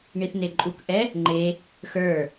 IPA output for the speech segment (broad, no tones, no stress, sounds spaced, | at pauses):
ɳ i θ n e ǃʼ u k ʔ ɛ | ŋ͡ǃ e | x ə˞